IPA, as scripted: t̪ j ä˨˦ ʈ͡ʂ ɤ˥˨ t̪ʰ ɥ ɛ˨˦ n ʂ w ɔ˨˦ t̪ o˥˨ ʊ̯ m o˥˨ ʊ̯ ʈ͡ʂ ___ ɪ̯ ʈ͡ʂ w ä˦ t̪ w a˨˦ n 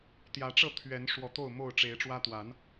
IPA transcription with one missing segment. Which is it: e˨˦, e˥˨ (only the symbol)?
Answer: e˨˦